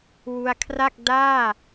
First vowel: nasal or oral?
oral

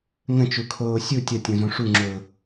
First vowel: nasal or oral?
nasal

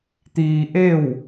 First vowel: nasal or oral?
oral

